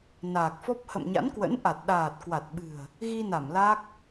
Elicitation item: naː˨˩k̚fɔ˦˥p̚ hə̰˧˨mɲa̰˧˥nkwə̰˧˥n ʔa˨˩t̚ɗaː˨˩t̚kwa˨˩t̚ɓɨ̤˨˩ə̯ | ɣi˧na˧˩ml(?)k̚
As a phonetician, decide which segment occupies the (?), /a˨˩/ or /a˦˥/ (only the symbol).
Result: a˦˥